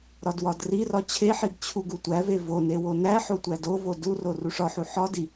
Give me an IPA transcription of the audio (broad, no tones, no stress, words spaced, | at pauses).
ɾɒdwɒdrirɒ t͡ɕʰeħiɡ t͡ɕʰuɡutʷæve vo newonæħo tʷædovo duro ruʂɒħu ħɒdi